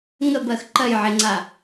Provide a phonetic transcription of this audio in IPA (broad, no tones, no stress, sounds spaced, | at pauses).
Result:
ŋ ə b ɜ x ǃ ɜ j ʕ e ŋ͡ǀ a